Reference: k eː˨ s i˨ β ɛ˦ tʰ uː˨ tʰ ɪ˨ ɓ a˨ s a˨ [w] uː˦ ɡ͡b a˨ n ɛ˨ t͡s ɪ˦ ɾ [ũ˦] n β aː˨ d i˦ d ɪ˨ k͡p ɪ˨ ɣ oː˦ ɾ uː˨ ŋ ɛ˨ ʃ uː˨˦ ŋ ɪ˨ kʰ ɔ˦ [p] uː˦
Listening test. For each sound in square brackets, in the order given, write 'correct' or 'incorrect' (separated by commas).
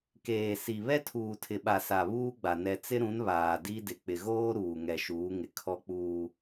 incorrect, incorrect, incorrect